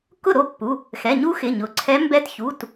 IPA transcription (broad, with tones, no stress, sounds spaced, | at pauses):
k ʊ˥˩ ɾ o˥˩ pː u˩˧˩ | x ɛ˩˧˩ ɲ u˧˥ x ɪ˩˧˩ ɲ ʊ˩˧˩ ǀʰ ɛ˧˥ m b ɛ˧˥ t ç u˩˧˩ t